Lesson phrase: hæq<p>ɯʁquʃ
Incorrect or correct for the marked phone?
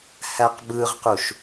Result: incorrect: b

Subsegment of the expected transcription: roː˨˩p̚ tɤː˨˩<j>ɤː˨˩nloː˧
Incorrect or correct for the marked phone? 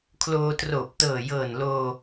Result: correct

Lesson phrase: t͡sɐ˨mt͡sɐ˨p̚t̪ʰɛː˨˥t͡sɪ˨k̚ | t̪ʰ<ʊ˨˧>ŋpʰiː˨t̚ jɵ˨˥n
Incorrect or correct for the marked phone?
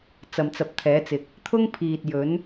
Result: incorrect: ʊ˥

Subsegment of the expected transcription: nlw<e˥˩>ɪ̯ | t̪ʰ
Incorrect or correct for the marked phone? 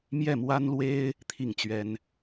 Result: incorrect: e˥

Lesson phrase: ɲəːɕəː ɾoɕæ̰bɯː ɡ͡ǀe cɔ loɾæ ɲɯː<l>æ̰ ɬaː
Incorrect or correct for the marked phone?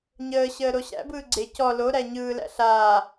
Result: correct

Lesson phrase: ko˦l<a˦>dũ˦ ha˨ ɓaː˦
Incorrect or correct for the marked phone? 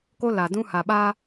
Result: incorrect: a˨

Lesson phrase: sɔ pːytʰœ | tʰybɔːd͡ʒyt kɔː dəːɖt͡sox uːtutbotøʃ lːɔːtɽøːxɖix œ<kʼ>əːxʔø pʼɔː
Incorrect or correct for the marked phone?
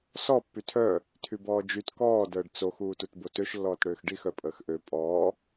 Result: incorrect: pʼ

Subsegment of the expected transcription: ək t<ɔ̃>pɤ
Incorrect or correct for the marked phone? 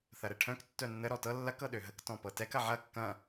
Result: correct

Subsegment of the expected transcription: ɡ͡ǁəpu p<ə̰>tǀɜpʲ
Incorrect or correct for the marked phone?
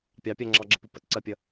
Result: correct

